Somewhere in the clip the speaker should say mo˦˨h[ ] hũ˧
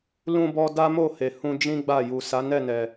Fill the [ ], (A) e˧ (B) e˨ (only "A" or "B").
B